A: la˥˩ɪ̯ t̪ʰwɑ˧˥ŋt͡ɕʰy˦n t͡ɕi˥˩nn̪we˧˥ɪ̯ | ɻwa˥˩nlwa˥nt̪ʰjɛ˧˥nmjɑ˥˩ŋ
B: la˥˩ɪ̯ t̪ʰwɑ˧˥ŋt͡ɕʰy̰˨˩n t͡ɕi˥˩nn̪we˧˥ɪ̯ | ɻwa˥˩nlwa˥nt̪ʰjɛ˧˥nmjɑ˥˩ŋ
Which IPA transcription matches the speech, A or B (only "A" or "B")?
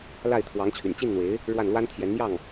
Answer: B